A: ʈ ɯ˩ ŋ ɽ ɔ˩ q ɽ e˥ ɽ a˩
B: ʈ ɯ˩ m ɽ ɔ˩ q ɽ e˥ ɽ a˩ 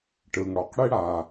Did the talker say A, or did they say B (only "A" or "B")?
A